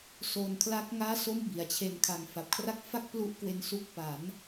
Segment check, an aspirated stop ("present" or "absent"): present